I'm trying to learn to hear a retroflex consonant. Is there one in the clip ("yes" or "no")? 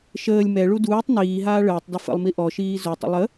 yes